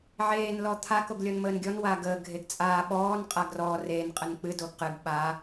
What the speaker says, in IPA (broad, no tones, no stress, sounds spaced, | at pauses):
ʕ eː n l ɔ t̪ʰ a k o ɡ lʲ ɔ n m əː n ɡʲ ɔ n w a ɡ əː ɡʱ e ɡ t͡sʼ aː ɓ ɔː n qʼ a ɡ r ɔ r e n qʼ ə n k͡p ɨ d o ɡ q ɨ ɡ ɓ a